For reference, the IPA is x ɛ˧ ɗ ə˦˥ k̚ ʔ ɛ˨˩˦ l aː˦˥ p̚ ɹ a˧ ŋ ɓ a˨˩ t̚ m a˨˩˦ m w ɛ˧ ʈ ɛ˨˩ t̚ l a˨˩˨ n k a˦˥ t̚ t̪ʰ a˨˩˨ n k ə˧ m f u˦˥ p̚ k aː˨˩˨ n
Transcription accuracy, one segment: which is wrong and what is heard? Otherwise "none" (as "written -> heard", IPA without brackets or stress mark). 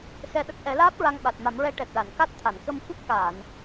w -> ɹ